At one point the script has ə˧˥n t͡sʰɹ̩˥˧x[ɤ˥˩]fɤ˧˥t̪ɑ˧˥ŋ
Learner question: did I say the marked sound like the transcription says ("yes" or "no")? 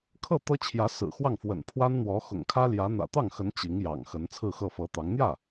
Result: yes